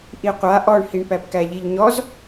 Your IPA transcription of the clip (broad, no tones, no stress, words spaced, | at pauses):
ʔiqʷa ʔɔɳhiɳpæp kæʎiʎɲɔz